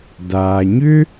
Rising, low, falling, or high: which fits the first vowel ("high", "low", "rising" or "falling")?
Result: low